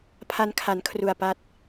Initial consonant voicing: voiceless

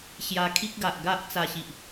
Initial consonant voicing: voiceless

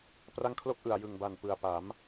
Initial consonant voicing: voiceless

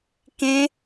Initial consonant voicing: voiceless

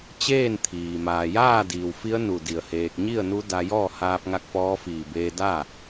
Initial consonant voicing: voiceless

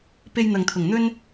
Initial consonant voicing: voiceless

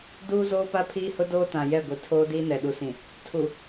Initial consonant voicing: voiced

